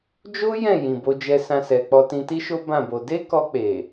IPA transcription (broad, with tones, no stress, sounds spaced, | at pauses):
d͡ʒ o˦ j ɛ̃˦˨ j ĩ˨ b o˧ d͡ʒ ɛ˧ s ã˧ s ɛ˨ k͡p ɔ˧ t ĩ˧ t i˦ ʃ o˦ b ã˦˨ b o˧ d e˦ k ɔ˧ k͡p e˨